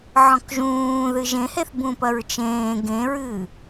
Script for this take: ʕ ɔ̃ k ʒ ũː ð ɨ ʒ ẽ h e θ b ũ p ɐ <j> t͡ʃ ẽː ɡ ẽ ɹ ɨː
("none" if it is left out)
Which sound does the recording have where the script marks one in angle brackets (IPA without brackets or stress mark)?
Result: ɹ